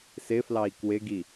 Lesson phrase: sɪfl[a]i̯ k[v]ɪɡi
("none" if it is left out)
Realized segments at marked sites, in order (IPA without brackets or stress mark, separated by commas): ɑ, w